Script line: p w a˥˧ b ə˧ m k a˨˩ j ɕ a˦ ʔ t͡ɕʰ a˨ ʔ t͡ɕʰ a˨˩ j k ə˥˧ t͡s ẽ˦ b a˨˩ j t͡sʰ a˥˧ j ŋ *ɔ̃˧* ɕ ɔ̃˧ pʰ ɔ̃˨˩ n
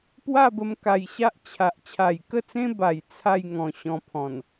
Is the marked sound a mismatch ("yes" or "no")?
no